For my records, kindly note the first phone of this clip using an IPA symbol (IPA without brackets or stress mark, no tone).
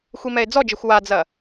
xʷ